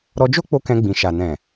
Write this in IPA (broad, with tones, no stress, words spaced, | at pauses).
ɾɔ˧d͡ʒo˦k͡po˧ kɛ̃˧ɡ͡bĩ˨ʃa˨ nɛ̃˨